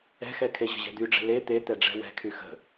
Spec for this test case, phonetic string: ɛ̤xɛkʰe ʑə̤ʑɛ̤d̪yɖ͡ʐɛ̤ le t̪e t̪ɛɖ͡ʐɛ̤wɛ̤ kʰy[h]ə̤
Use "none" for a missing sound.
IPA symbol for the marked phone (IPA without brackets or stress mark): x